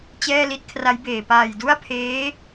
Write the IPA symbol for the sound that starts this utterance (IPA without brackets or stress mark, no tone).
t͡ɕ